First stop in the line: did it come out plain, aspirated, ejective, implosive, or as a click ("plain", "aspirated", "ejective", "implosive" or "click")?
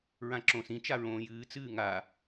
click